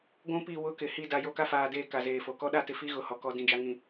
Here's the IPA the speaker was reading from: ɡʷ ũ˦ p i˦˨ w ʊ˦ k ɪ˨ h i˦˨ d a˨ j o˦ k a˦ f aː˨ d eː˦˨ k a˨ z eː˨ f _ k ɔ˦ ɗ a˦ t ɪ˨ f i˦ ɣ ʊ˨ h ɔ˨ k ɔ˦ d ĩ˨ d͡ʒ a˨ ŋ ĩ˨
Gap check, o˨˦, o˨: o˨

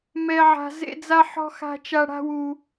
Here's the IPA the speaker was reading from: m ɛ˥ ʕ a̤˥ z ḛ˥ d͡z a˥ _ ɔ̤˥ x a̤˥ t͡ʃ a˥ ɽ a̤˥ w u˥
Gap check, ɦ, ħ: ħ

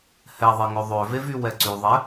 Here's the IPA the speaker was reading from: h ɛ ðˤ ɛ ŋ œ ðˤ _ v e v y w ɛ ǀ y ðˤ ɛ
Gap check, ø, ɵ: ø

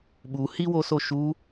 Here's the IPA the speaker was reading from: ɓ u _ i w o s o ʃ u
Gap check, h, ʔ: h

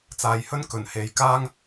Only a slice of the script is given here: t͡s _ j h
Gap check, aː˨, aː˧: aː˨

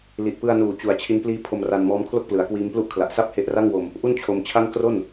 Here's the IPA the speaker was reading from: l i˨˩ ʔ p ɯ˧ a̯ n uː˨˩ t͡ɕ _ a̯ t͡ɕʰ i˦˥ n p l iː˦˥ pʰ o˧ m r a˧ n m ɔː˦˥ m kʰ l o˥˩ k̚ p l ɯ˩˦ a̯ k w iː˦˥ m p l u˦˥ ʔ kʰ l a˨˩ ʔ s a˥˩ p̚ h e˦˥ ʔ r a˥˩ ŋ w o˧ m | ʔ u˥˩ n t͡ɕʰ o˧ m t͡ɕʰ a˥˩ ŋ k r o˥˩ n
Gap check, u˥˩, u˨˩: u˨˩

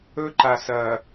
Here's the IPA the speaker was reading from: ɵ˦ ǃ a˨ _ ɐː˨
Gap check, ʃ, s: s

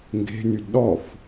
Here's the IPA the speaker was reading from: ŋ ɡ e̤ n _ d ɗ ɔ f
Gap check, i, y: y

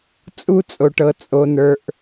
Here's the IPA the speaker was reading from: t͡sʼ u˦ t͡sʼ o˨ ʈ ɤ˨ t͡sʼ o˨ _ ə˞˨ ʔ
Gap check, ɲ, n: n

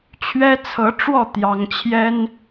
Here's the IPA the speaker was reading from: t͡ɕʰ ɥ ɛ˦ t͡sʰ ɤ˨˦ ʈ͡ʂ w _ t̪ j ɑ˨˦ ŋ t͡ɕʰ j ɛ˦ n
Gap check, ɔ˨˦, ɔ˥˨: ɔ˥˨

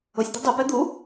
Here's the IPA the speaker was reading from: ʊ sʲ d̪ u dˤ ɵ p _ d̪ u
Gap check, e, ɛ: ɛ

